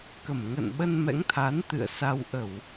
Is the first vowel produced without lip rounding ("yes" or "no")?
yes